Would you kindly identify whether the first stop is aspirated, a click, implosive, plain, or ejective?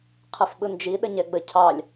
aspirated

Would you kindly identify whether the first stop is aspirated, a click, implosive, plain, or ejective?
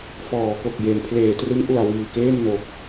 plain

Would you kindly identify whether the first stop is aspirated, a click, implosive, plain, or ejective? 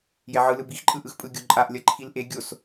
plain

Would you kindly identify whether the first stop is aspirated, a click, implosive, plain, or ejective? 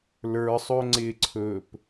click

